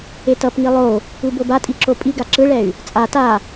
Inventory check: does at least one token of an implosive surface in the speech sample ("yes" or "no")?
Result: no